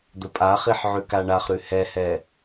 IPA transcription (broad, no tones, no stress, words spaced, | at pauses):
d̪əpʼaχiħ ʕʉkaɳaχɾʉ hɛhɛ